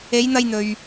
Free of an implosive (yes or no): yes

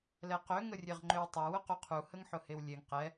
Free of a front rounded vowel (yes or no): no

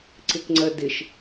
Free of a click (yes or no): no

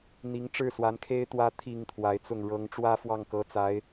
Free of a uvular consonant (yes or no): yes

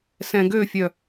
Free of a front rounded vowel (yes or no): no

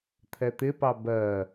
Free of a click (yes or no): yes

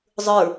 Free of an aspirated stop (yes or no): yes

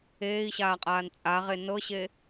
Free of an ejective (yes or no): no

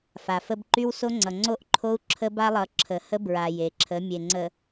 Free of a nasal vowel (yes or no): yes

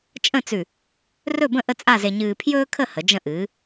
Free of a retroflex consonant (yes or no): yes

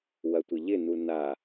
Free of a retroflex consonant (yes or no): yes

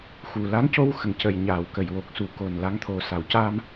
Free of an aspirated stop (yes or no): no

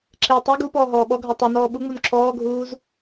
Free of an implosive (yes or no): no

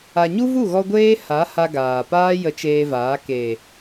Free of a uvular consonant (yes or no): yes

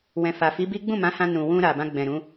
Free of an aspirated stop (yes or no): yes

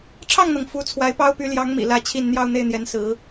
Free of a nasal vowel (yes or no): yes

